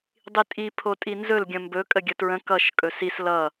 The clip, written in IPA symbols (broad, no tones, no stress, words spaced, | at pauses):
dˤitʼi pʰotʼinzɵl ɡʲə̃mbɵ kʼəɡʲətɹə̃ kʌʃ kʼɵsis lʌ